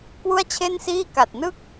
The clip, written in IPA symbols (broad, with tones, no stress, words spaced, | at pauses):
kwu˥˩a̯t͡ɕʰe˥˩nsiː˥˩ ka˨˩t̚nɯ˥˩k̚